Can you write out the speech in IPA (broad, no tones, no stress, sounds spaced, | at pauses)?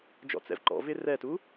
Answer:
d͡ʒ ɔ̰ t͡s ɛ̰ v ǃ ɔ̰ v ɪ r ɛ t u